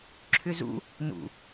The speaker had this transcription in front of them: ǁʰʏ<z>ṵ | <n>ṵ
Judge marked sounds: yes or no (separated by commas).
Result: yes, yes